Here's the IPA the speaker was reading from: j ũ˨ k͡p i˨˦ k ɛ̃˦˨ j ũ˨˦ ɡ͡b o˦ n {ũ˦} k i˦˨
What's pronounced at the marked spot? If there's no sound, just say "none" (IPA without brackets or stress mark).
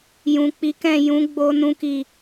ũ˦